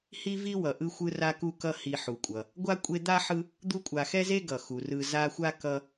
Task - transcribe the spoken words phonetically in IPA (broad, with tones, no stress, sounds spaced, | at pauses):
h i˦ v i˦ w ʌ˩ ʔ ɯ˥ xʷ ɯ˥ r a˦ k u˦ k ʌ˦ h i˨ ħ u˩ kʷʼ ʌ˩ | ɡʷ a˥ kʷʼ e˦ d̪ a˥ ħ ɯ˦ | d̪ u˦ kʷʼ a˨ x ɛ˥ z e˥ ɡ ʌ˩ x u˩ r ɯ˨ z a˦ xʷ a˥ k ʌ˦